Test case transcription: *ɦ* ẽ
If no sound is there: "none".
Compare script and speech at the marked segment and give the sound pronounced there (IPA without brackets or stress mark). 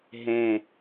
ɦ